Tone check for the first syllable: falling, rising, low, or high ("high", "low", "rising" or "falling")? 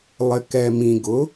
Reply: low